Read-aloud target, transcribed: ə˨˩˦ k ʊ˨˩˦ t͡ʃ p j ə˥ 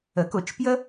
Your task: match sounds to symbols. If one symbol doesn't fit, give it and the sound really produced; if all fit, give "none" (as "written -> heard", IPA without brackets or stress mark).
none